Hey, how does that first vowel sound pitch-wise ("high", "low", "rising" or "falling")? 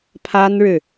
high